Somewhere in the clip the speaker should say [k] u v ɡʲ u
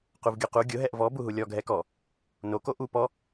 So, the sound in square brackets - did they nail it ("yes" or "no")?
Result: no